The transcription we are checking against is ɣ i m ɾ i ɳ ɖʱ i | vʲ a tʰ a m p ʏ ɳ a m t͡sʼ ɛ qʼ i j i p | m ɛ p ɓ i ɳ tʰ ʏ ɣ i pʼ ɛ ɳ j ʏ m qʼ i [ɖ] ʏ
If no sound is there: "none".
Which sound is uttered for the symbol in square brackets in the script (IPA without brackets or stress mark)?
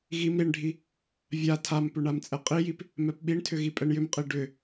ɖ